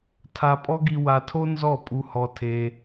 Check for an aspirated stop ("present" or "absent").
present